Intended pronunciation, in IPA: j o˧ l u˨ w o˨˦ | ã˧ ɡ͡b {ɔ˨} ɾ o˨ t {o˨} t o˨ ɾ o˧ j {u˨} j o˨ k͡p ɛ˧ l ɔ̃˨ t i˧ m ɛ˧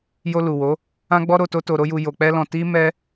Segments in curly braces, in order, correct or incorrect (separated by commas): incorrect, incorrect, correct